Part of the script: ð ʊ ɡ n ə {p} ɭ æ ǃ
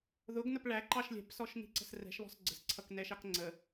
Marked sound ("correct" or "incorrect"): correct